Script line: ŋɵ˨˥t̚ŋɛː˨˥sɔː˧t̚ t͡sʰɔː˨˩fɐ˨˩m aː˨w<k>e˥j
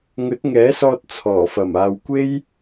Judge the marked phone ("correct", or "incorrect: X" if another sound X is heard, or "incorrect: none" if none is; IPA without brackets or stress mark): incorrect: kʷ